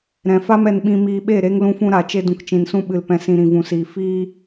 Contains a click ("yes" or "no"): no